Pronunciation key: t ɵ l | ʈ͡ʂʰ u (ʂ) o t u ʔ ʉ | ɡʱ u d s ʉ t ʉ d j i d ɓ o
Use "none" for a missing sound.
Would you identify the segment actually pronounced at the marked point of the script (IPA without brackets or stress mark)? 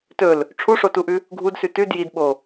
ʂ